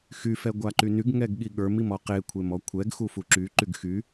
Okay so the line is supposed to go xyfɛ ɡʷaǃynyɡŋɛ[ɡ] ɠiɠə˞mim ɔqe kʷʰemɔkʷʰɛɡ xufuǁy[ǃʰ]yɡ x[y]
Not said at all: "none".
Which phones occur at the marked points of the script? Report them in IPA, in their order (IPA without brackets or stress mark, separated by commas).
ɡ, ǃ, y